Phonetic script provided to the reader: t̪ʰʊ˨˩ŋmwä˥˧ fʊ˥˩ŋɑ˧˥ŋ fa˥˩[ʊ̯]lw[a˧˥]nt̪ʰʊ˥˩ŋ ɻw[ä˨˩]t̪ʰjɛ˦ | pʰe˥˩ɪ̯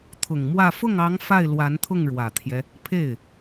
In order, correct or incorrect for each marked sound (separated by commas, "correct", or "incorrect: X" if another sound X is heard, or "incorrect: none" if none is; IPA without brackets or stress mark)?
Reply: incorrect: ɪ̯, correct, correct